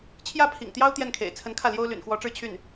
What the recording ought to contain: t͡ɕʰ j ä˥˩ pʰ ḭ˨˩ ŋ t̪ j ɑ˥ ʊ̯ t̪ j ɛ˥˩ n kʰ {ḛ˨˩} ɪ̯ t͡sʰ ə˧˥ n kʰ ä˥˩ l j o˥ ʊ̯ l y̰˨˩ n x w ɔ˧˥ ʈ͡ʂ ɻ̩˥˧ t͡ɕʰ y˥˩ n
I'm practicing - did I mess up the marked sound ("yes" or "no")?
no